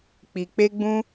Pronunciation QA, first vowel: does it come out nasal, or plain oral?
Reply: oral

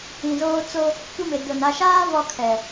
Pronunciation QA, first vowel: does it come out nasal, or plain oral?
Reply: nasal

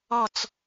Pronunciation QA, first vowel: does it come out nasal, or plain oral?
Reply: oral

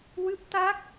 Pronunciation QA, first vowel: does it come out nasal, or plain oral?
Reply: oral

